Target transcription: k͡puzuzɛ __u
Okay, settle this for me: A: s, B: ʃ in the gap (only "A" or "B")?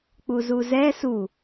A